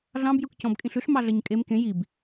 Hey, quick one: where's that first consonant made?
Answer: tongue tip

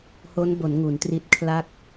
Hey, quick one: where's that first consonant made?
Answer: throat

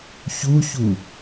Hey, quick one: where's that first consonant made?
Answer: palate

